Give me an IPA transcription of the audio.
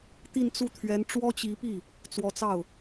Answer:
t̪i˥˧nt͡su˥˩t̪ʰɥɛ˧˥n ʈ͡ʂwɔ˥t͡ɕi˧˥pi˥˩ | t͡swɔ˧˥t͡sɑ˥˩ʊ̯

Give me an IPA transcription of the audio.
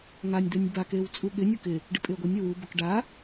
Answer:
ŋanʲd̪ɛnʲ bakew t͡sʼuɠɪnʲu kɪ | ɖɪpʼɪə̯ɡʷɛnʲɔw ubʊk ɖa

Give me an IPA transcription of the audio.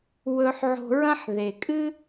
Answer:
wɵ˧ħʕo̤˧ɹɐ̃˥ħ ðe˩kʼɨ˥

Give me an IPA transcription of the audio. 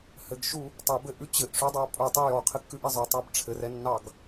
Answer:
hɘɡʃu | tˤɛbɘʔʉ t͡ɕɘʔʂʉdˤa pʼutˤʉ jɔqʰɘkːʉʔi zˤœtˤab ʈ͡ʂʰɘrɛnːɑɡ

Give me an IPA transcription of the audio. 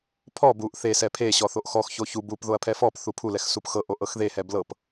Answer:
pʰɔ buʔ θe sɛpʰe ɕɔθoʔxɔx çoçu bup ðoɐ̯pʰɛfɔp θupʰulɛx supxɤ ʔoʔɤxðehɛ blɤp

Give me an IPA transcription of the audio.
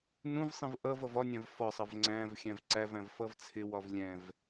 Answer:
nũvsˤĩv ʔʌv ʌvɒnʲæ̃v fɒsˤʌv ŋ͡ǀæ̃v xʲæ̃vǀævæ̃v fʌvt͡sʰɪwɒv lʲɛ̃v

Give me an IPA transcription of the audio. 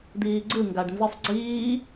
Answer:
d̪iːɡ͡ǀɯ ŋɡaɖnzɯsˤɡ͡ǀiː

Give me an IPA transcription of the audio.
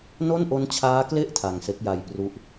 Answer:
no˥˩nʔo˦˥nt͡ɕʰaː˦˥kle˥˩ʔ tʰa˧ŋse˦˥k̚ja˧j pru˥˩ʔ

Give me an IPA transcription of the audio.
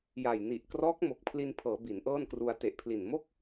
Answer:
ja˨˩j ni˨˩ʔkrɔː˦˥k̚ mo˨˩k̚pʰli˧npʰɤː˩˦ bi˩˦nʔɤː˥˩nkru˧a̯ te˨˩ʔpʰli˨˩nmo˥˩k̚

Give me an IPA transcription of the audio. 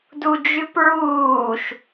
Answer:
dud͡ʒʉpɹuːʃ

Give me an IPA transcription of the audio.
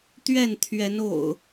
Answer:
t̪ɥɛ˥˨nt̪ʰɥɛ˨˦no̰˨˩ʊ̯

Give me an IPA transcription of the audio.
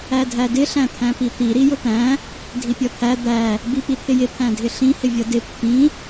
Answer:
ædʱædɪ ɬæ̃t̪ʰæ̃pit̪i ɾijʊt̪æ̃ | dʱipʲʌt̪ʰæ d̪æ | bipit̪ʰɪjɪ t̪ʰæ̃dʱɪɬĩ hɪvʲʌdɪ pːĩ

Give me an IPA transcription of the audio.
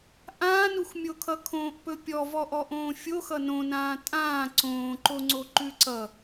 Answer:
ʔãːnuxmʲokʰʌ kʰõːʔpɵpʲɔ vɔʔɔʔõːfʲox ʌnõnãː tʼãː ǀõːǃoŋ͡ǀo ǃʉǀʌ

